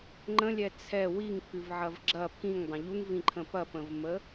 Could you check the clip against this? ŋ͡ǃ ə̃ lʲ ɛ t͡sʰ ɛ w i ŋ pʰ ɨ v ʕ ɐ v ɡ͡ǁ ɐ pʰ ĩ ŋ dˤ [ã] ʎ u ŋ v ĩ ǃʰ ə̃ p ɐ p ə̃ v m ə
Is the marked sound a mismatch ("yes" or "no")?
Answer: yes